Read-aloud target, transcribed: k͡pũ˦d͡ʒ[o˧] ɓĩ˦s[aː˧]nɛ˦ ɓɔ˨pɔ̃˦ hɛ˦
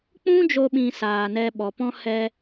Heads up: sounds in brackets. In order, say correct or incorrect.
correct, correct

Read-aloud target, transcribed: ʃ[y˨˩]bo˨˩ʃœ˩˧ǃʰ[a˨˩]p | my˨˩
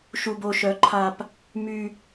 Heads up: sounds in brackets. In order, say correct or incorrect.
incorrect, correct

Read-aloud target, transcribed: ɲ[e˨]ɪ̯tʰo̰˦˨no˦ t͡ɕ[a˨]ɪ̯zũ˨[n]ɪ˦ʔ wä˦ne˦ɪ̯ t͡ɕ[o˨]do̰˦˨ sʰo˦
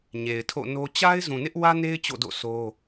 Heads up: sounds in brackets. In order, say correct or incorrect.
correct, incorrect, correct, incorrect

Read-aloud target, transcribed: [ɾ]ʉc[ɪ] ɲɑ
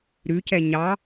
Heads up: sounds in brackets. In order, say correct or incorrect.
correct, incorrect

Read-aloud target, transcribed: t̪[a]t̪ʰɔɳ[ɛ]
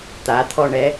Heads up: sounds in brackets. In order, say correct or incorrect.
correct, correct

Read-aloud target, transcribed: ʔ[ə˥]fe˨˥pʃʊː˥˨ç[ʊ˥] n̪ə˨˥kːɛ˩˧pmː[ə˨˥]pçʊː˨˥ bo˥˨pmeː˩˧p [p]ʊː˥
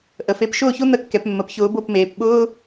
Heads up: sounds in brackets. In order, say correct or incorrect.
incorrect, correct, incorrect, incorrect

